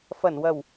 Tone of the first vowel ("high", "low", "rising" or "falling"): low